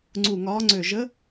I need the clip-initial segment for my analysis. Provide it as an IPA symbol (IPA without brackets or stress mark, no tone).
ŋ͡ǀ